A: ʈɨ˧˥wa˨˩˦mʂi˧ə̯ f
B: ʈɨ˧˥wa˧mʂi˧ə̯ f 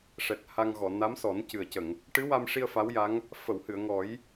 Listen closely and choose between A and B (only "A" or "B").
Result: B